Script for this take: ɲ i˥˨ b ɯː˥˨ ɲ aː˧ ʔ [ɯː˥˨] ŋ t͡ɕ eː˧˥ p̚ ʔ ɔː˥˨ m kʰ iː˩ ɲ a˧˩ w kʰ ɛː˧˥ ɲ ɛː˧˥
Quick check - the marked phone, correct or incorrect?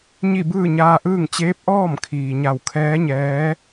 correct